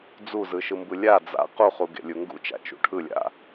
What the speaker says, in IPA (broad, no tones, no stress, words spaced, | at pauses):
d͡zuzɯʃɯmbɯ lʲa d͡za̰ quχuɡḛ lʲuŋɡṵ t͡ʃa̰t͡ʃṵʈʰɯlʲa̰